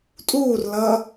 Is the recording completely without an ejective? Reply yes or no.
no